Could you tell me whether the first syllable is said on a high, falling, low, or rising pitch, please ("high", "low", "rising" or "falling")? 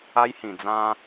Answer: high